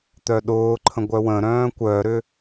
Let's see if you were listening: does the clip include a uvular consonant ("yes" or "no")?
no